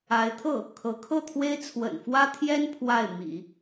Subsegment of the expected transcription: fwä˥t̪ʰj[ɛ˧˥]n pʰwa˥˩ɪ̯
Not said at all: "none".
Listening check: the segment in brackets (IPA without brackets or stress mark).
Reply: ɛ˥